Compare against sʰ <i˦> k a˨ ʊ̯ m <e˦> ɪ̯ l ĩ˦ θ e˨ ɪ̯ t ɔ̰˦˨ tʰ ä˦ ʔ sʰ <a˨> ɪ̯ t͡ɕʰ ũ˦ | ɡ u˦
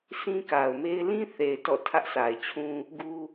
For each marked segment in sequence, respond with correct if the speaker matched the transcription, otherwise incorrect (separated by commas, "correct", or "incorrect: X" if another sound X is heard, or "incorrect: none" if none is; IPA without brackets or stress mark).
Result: incorrect: ĩ˦, correct, correct